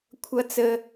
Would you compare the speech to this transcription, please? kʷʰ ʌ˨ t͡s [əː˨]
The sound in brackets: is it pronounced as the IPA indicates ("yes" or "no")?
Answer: no